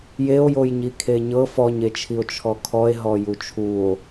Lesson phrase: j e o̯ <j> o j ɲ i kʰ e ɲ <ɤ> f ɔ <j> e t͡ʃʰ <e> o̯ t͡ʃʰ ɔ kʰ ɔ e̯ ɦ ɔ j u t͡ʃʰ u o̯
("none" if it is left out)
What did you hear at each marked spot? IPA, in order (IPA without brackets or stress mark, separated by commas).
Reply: j, ɤ, ɲ, i